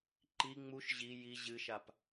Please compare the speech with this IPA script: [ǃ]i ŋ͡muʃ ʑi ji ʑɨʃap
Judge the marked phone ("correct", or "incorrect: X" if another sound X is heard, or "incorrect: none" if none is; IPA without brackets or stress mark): correct